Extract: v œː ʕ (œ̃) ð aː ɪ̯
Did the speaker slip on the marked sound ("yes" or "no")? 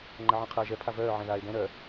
yes